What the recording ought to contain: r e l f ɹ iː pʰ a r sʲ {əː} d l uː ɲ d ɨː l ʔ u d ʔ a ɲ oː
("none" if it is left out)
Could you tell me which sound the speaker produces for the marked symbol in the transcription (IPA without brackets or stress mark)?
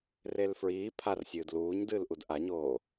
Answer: ɨː